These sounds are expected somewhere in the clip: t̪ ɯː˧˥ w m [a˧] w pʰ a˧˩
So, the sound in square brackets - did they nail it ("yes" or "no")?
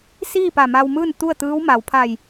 no